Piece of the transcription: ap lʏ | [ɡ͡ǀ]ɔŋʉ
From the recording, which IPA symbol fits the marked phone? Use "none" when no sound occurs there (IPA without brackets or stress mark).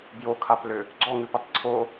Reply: ɡ͡ǀ